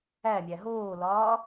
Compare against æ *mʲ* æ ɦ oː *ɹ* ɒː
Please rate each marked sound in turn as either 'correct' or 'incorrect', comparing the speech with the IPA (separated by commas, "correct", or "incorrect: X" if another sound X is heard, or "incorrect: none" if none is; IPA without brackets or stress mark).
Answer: correct, incorrect: l